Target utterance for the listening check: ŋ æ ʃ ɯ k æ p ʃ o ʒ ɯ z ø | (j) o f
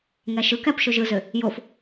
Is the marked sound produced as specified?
yes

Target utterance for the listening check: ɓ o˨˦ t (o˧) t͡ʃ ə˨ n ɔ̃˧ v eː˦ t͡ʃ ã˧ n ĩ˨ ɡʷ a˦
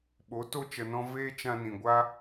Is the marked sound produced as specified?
yes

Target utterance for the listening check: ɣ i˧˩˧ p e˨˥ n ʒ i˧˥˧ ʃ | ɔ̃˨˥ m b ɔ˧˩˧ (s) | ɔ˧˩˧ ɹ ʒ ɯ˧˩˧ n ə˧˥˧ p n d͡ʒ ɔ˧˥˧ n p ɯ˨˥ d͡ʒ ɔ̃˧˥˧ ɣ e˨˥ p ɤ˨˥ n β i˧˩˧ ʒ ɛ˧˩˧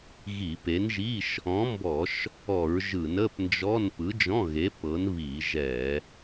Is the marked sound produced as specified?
no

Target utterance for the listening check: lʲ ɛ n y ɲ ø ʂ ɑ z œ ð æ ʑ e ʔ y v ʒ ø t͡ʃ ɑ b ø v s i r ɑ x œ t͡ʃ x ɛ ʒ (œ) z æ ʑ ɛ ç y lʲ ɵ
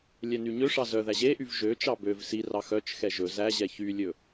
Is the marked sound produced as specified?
no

